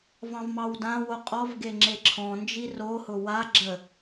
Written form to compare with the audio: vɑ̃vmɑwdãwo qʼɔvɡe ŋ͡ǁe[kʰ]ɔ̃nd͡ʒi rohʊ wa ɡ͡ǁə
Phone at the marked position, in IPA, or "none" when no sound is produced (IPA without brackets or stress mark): ǁʰ